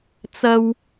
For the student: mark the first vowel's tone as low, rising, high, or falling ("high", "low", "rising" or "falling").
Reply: high